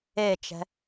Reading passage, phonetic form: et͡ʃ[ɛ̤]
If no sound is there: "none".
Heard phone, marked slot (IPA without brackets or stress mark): ɛ̤